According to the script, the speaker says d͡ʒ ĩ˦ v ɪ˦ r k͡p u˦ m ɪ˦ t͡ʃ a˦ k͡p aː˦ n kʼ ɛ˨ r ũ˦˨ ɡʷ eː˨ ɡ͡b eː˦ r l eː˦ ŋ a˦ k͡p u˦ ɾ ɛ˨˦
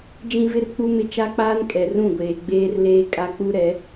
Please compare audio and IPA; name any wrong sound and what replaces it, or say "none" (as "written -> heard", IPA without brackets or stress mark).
ŋ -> kʼ